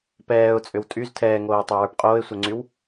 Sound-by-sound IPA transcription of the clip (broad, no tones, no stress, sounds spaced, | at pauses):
p ɛː ʊ̯ t͡sʼ ʏ w tʼ y z tʰ ɛː ŋ oː ɪ̯ tˤ ɘ ʊ̯ w ə˞ p qʼ oː ɪ̯ sʷ ɛ ŋ͡ǀ y w